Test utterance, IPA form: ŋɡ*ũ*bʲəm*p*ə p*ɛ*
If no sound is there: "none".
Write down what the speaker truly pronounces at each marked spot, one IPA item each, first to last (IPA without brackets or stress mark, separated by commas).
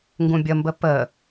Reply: ũ, b, ə